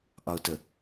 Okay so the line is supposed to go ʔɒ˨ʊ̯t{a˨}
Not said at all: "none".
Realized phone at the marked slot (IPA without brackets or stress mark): ə˨